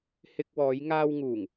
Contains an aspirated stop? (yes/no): no